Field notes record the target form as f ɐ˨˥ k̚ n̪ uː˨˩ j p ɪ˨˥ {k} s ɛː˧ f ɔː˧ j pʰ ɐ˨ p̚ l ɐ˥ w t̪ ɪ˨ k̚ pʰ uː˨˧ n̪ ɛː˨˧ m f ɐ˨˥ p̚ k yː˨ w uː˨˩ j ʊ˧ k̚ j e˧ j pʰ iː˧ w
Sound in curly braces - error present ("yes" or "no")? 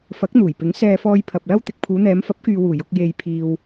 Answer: yes